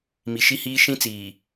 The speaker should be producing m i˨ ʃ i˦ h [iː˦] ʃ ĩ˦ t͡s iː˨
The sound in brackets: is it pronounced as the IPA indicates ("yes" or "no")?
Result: yes